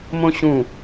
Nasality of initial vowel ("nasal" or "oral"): nasal